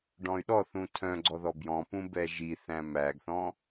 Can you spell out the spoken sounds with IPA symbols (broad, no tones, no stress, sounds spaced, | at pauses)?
ɖ ɔ̃ y̯ ɗ ɔ θ ũ tʰ œ̃ ɡ͡ǀ ɔ ð ɔ b j ɔ̃ p ũ b ɛ ʒ i θ æ̃ m æ ɡ θ ɔ̃